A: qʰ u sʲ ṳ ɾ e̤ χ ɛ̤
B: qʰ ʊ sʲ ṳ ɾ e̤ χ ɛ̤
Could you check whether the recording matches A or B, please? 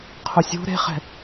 B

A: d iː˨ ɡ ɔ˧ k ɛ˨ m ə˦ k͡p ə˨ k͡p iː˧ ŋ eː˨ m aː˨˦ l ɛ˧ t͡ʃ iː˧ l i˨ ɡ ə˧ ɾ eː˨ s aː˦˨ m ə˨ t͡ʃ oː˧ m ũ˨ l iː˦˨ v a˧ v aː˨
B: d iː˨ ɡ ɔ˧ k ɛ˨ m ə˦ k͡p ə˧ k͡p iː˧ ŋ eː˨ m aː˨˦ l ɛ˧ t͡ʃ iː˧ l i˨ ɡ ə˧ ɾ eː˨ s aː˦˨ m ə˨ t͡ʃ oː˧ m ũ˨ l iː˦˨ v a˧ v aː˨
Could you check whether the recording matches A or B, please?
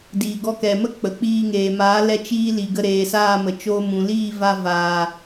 A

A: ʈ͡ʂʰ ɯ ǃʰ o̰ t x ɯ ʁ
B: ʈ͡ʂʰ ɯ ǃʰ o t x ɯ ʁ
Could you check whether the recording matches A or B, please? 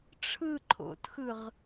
A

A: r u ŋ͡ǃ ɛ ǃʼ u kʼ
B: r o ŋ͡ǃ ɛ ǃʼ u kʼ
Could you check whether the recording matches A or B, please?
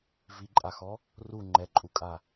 A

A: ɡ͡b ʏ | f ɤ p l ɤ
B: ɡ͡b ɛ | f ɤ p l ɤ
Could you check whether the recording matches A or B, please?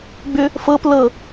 A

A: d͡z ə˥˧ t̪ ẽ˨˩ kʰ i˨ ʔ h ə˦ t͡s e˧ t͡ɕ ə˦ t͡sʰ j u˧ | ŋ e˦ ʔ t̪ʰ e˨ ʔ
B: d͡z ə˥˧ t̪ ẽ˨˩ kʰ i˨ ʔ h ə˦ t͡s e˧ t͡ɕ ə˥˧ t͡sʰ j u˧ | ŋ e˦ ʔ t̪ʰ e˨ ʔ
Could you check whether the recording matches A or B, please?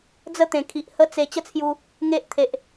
A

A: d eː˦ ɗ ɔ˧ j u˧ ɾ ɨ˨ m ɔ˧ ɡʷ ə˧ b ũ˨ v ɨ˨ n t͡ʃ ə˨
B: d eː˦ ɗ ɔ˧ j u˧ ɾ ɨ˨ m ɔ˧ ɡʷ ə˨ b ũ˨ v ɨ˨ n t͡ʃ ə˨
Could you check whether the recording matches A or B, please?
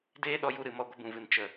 A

